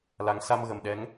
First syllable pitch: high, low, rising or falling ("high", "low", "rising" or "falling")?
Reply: rising